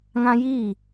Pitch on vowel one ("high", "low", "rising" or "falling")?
high